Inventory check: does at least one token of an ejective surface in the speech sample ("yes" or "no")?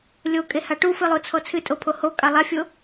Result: yes